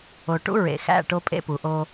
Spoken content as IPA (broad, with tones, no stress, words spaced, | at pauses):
o˨ʈṵ˦ ɹḛ˨ xæ̰˦˨ʈo˦ pʼḛ˦pu˨ʔo˦